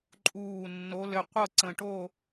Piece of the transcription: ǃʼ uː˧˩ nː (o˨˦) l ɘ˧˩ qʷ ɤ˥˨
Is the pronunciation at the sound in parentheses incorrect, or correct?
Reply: correct